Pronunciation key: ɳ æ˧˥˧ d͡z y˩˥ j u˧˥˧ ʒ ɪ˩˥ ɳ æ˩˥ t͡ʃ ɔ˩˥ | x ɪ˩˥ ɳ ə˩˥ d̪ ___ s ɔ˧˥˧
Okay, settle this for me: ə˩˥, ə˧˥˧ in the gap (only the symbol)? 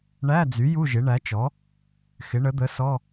ə˩˥